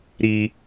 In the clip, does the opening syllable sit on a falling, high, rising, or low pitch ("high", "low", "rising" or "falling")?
high